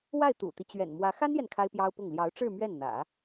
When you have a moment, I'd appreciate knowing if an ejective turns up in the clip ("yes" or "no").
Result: no